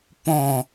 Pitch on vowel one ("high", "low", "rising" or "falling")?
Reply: falling